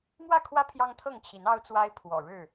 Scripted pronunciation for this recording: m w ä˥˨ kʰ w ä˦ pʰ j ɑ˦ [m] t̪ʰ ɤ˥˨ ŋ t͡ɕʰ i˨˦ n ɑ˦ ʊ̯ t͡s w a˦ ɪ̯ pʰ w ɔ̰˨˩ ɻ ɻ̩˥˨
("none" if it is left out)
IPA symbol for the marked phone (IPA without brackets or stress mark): ŋ